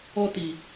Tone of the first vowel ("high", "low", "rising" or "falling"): high